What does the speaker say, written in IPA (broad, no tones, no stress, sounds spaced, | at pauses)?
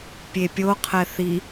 pʲ e pʲ o qʰ ɛ θ i